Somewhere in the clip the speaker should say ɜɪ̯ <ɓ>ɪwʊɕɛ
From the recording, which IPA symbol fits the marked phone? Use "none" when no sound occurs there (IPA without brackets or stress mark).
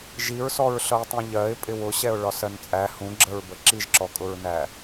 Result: pʼ